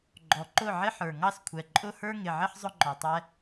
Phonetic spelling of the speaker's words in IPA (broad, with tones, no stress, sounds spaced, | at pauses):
ɡ͡ǃ ɔ˨ ǃ ʊ˦˨ ʕ ɪ˦ ħ ə˞˨ ŋ ɑ˦ s kʷʰ ɛ˨ ǃʼ ʊ˦ h ə˞˦ ŋ ɪ˨ ʕ ɪ˦ ħ zˤ ʊ˦ ŋ͡ǃ ɔ˨ tˤ ɛ˦